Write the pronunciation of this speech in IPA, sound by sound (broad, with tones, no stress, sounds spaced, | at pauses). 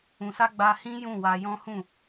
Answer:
ũ˨ s a˧ ɡ͡b a˧ h ĩ˦ j ũ˦˨ w a˧ j ɔ̃˦ h ũ˦˨